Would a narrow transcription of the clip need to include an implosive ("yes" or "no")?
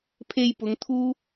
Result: no